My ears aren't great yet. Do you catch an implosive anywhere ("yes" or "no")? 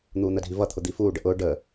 no